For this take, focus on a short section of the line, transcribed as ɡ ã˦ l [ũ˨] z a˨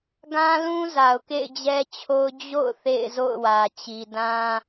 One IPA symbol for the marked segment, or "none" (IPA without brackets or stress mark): ũ˦